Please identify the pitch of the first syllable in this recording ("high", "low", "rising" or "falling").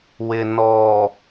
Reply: low